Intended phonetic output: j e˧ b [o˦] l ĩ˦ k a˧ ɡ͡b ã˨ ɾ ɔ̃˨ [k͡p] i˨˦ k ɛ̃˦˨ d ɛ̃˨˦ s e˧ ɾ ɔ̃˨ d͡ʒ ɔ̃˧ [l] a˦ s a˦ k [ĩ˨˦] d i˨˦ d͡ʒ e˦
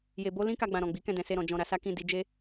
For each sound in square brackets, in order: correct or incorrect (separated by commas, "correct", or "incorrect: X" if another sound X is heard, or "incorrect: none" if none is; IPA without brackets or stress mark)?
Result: correct, incorrect: ɡ͡b, incorrect: ɾ, incorrect: ĩ˦˨